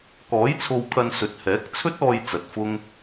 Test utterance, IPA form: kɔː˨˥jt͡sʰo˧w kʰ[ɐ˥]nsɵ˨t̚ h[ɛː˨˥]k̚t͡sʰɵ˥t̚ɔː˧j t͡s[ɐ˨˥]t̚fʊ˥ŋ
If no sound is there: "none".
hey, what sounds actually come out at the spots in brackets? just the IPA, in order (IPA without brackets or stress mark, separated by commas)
ɐ˧, ɛː˨˥, ɐ˨